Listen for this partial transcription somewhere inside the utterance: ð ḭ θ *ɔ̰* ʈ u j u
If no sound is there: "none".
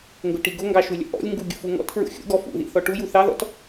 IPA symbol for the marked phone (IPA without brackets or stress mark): ɔ